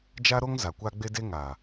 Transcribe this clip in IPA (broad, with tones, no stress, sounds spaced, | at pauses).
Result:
d͡ʒ a˦ ɾ o˦ ŋ z a˨ kʷ a˦ ɡ͡b e˦ d e˦ ŋ a˨